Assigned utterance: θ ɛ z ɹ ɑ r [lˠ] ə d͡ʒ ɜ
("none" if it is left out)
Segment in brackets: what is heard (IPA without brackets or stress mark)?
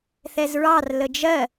l